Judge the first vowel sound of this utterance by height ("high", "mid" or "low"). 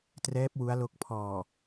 mid